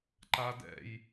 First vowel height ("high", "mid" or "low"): low